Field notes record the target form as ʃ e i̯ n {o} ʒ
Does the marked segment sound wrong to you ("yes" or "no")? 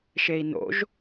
yes